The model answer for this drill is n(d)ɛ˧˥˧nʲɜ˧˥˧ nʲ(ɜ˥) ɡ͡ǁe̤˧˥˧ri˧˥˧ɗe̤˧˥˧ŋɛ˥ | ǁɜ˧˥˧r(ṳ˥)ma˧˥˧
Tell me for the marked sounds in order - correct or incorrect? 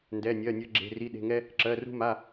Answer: correct, correct, correct

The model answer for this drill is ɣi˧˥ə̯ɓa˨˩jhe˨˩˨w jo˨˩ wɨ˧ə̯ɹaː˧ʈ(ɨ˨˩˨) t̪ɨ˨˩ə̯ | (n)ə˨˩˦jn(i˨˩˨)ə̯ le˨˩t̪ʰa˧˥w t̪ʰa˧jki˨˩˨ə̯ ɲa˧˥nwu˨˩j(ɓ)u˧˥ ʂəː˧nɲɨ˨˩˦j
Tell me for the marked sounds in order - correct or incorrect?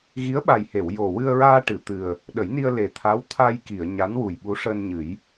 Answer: correct, incorrect, incorrect, correct

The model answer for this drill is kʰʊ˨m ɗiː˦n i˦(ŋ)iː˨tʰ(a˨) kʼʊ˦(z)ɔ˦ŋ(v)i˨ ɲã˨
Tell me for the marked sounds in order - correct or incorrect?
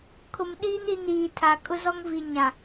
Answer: incorrect, correct, correct, correct

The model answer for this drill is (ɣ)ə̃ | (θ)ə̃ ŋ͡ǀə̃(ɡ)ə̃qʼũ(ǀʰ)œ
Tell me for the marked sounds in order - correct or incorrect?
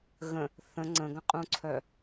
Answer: correct, correct, correct, correct

